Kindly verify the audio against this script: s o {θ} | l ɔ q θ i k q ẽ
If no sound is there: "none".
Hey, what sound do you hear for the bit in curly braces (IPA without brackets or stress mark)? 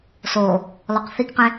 none